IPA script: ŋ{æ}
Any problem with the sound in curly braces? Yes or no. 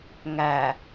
no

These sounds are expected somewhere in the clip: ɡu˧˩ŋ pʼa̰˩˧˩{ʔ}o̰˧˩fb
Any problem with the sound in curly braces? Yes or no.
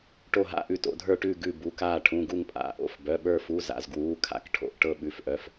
no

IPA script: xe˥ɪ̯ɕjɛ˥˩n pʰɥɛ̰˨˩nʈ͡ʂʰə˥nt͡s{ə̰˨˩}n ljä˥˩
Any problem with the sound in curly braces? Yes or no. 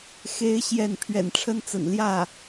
no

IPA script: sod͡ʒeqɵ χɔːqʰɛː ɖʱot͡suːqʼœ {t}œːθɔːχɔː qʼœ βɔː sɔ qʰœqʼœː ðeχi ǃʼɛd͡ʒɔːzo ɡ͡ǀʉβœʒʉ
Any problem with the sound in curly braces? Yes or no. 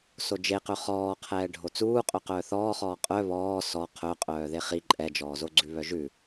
yes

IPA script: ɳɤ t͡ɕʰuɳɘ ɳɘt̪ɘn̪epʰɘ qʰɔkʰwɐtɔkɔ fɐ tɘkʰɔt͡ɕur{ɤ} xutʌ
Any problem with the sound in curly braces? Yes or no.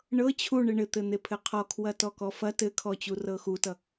no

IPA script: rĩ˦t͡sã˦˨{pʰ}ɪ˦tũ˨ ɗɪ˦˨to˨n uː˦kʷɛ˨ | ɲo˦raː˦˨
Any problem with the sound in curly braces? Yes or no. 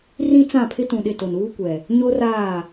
no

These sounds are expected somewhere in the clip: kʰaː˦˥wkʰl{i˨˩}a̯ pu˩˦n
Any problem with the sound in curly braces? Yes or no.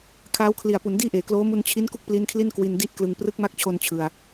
no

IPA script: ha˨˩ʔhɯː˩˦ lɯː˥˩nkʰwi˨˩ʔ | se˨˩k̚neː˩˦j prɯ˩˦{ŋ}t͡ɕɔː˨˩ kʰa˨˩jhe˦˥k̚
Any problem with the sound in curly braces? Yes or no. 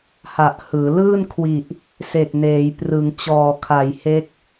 no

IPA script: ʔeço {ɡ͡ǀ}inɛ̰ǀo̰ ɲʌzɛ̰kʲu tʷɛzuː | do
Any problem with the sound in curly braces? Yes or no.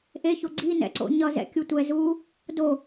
no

